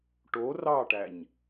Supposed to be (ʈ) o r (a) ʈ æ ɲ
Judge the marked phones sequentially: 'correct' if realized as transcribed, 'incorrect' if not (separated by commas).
correct, incorrect